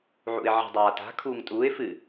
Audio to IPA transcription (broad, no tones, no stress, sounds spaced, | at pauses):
ʕ ṵ ɪ̯ ʕ i̤ dˤ aː t a̤ kʰ uː ŋ tʼ uː ɪ̯ f ɨ